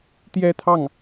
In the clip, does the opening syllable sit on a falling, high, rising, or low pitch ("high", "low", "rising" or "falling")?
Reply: high